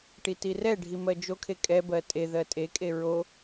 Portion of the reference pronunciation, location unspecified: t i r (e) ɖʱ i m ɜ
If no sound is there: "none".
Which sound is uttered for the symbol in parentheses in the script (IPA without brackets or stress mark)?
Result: ɛ